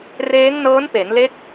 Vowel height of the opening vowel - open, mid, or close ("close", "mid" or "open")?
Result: mid